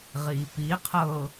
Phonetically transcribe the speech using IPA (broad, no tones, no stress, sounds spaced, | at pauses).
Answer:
ʁ iː p i qʰ ɤ